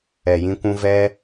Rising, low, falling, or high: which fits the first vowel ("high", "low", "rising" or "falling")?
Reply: low